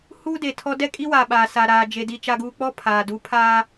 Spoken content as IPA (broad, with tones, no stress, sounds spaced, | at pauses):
h uː˦ d e˨ tʰ ɔ˦ d ɛ˦ kʼ i˦ w aː˨ ɓ aː˨ s a˨ ɾ aː˨ d͡ʒ e˨ d i˨ t͡ʃ a˨ ɡ uː˨ k͡p ɔ˦ pʰ aː˨ d u˨˦ pʰ aː˦